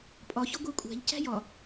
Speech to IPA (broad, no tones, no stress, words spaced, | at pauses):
pʼɒçɒ ɡʷækʷʼæ̤ʎ cæ̤jɒ